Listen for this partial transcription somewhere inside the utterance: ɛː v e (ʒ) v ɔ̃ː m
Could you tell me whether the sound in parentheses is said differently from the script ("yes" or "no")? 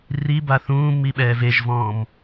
no